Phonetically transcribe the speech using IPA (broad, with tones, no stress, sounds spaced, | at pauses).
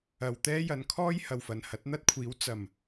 ɐ˨ w t̪ ɛː˥ j ɐ˨ n kʰ ɔː˥ j h ɐ˨ w f ɐ˨ n h ɐ˨˥ t̚ n̪ ɐ˥ t̚ kʷʰ iː˨˥ w t͡s ɐ˨˩ m